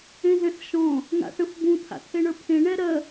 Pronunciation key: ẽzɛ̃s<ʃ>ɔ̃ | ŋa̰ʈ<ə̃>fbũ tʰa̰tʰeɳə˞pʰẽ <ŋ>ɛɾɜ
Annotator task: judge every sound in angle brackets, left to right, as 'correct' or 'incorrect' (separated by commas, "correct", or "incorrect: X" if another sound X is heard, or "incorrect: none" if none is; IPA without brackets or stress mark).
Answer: correct, correct, incorrect: ɳ